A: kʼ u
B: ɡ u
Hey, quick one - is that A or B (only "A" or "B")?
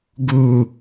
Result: B